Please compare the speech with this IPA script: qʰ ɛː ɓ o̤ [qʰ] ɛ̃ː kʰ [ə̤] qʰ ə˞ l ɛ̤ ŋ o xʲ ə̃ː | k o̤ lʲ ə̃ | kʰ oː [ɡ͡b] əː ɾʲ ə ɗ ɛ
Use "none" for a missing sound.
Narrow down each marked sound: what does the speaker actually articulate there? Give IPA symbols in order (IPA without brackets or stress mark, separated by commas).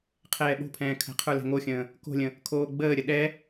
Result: pʰ, ə̤, ɡ͡b